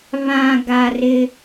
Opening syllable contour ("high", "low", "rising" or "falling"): low